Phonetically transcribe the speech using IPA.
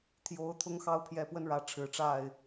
t̪ʰjo˨˦ʊ̯ t̪ʰʊ˨˦ŋxɑ˨˦ʊ̯pʰjɛ˨˩pwə˨˦n ɻä˨˦ʈ͡ʂʰɻ̩˨˩ʈ͡ʂa˥˨ɪ̯

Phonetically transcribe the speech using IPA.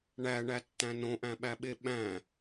ɳæɳætːæ̃ nõʔæ̃ɓæɓe ɓæ̃

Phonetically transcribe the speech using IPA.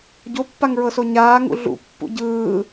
ɟopːaŋɹɤso ɲaːŋṵ ɮṵpːṵ ɟɯː

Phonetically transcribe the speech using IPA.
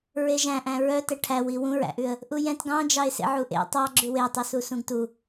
ɹeʒæ̃ʔæ̃ ɹœ tɛʈʰæwi wũɹæ̰ʔʉə̯ | ʔujɛ̃t ɡɑ̃d͡ʒɑɪ̯ sḛʕuʔḛ tˤɑ ɡ͡ǁʉwetˤusu sũɡtu

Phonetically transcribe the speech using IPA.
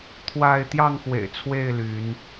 t̪ʰwa˥˨ɪ̯ t̪jɑ˥˨ŋxwḛ˨˩ɪ̯t͡sʰwe˥˨ɪ̯ ly˨˦n

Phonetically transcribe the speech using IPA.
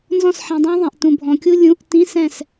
nzɔ̃˥˨sħĩ˨dˤɛ̃˥ðˤẽ˨ʔ tũ˨bʱɔ̃˨kʲu˥ lʲũ˧˥˧ʔ tĩ˧˥˧ sɛ̃˥˨s

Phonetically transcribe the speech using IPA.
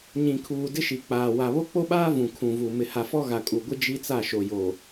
ɲĩ˨kʰuː˨dɪ˦ʃi˨ k͡paː˨wa˨ βo˦k͡po˦ɓaː˦ vũ˨kʰũ˨vu˨ mɪ˨ha˨fɔ˦ ɣa˨kʼu˨ɡʷɪ˦ d͡ʒi˦t͡sa˦˨ ʃo˨jo˨

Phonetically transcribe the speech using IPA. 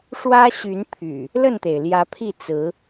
ʂwä˦ ɕy˨˦n pʰy̰˨˩ | lə˥˨nt̪e˩ɪ̯ljä˨˦pʰi˥˨ t͡sɹ̩˨˦

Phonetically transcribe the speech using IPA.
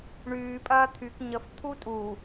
ɳyː pʼɐːt̪ʰyk ɲəf t̪ʰutʼu

